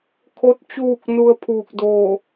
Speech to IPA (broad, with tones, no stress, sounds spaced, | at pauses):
kʰ o˧ t̚ t͡ɕ uː˧˩ k̚ n u˧ ə̯ pʰ uː˧˩ k̚ d oː˧˩